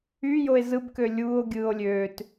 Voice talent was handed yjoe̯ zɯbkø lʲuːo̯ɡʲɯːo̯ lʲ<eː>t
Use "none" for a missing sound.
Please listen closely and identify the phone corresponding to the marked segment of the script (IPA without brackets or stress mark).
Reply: øː